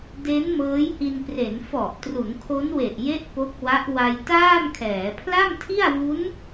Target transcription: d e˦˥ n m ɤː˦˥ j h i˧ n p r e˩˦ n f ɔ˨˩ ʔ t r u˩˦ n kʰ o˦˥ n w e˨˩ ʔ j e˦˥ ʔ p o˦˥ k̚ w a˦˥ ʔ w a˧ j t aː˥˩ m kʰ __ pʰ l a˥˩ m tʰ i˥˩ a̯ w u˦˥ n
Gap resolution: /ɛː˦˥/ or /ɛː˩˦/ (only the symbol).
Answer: ɛː˩˦